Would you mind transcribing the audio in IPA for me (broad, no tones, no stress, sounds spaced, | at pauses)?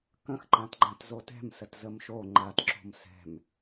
k ə̃ x ǃ ã t ɡ͡ǃ ã t z o t ɛ̤ m s ə t z ə m ʃ o ŋ͡ǃ a t ǁ o̤ m s ɛ̤ m